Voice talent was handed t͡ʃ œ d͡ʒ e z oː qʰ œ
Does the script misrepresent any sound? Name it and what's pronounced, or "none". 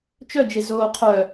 none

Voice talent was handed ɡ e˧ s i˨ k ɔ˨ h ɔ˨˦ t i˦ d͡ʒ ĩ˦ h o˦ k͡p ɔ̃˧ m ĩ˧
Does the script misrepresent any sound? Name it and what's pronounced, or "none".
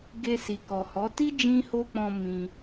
none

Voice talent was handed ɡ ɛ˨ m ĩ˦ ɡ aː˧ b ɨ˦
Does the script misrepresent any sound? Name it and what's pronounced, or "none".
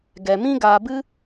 none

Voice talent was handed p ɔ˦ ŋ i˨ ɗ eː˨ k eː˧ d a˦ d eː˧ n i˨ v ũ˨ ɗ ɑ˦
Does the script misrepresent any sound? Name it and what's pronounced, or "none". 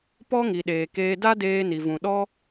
ɑ˦ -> ɔ˦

